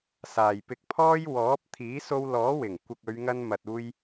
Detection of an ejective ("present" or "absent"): absent